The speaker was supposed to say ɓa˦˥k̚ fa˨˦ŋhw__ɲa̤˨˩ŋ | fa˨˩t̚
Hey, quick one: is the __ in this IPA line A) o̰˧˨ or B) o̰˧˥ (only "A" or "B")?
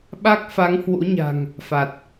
B